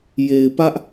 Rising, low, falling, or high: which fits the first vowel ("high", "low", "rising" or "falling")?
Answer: low